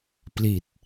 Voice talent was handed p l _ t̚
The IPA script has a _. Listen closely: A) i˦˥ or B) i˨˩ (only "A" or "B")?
B